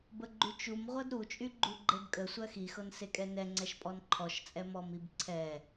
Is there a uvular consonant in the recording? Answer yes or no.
yes